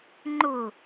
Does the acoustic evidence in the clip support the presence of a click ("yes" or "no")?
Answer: yes